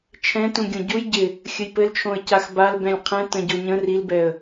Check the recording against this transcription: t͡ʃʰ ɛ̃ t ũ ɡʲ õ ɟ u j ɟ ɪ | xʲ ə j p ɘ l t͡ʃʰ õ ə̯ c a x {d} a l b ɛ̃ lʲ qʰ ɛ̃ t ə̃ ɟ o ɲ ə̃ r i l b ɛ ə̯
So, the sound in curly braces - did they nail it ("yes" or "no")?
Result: no